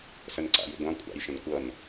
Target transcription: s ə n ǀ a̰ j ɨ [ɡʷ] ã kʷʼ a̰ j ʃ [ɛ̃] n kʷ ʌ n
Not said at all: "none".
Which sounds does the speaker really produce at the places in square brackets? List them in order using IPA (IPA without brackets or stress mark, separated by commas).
ɡʷ, ə̃